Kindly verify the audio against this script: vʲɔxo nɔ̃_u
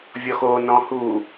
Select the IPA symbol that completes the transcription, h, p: h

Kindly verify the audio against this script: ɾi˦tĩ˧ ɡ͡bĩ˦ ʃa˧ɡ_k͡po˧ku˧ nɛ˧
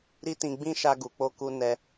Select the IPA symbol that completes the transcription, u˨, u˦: u˨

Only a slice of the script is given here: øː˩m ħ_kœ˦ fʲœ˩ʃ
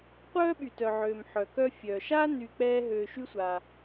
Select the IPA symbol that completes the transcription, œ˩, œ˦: œ˩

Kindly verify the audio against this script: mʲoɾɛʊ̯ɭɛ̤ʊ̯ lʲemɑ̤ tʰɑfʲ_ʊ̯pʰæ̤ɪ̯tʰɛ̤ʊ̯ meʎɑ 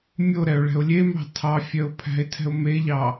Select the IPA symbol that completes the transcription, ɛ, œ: œ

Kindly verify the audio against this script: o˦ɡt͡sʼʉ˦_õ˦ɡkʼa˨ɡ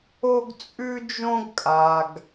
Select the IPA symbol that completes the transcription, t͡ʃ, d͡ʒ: d͡ʒ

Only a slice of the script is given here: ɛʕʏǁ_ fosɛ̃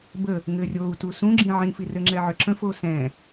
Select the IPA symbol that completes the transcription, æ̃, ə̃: ə̃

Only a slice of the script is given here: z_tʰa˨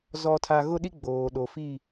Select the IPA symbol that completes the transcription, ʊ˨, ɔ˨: ɔ˨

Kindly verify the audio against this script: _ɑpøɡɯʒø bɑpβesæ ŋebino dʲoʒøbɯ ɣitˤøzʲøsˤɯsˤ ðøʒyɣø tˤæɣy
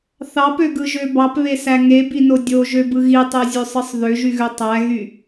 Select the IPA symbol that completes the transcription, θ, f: θ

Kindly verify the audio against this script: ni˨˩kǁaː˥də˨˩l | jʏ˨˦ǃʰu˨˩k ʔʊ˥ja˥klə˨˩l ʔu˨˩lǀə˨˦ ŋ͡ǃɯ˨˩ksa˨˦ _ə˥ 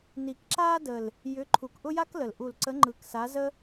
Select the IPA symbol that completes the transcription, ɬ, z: z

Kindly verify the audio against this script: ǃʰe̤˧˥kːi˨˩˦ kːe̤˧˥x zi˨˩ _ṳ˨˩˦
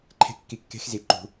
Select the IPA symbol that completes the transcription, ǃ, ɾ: ǃ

